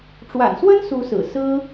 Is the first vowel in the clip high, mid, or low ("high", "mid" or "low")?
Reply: low